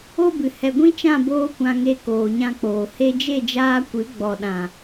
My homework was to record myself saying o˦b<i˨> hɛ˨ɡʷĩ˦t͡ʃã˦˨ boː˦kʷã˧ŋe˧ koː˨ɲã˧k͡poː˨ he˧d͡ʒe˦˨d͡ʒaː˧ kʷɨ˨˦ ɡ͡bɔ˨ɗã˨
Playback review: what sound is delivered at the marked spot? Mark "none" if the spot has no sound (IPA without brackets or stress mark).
ɨ˨